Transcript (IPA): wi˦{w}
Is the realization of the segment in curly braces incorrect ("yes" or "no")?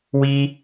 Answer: yes